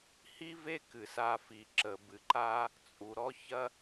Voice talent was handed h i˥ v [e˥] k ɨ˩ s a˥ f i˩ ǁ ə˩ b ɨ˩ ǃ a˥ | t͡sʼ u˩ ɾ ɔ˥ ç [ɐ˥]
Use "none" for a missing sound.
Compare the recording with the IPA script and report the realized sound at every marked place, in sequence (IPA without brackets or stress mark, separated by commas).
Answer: e˥, ɐ˥